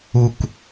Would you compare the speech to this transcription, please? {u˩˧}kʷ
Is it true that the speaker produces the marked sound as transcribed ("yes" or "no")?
no